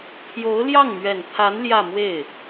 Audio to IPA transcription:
pʰjo˧˥ʊ̯ljɑ˥˩ŋmɥɛ˨˩nt̪ʰa˧˥n ljä˥˧mwe˥˩ɪ̯

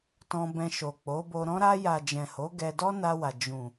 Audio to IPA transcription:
tɔ̃˧ bɛ̃˧ ʃo˨k͡po˨˦bo˧ ɾɔ̃˧ɾa˧ja˨ d͡ʒɛ̃˨ho˨˦ ɡɛ˧ dɔ˦na˧wa˨ d͡ʒũ˨

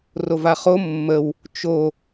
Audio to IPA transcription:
rovaχo mːəw | t͡ʃo

